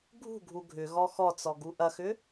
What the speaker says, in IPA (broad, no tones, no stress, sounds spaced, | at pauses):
ɡʱ ṳ ɡʱ u ɡʱ ʏ ɣ ɔ x ɔ t͡s ɔ ɡ u ʔ ɐ x ʏ